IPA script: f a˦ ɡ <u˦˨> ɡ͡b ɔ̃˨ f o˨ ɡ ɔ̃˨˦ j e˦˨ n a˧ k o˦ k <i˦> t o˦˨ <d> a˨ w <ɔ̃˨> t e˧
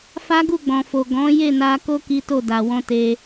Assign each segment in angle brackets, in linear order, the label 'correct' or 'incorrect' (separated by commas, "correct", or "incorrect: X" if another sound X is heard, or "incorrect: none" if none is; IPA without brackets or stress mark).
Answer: correct, correct, correct, incorrect: ɔ̃˧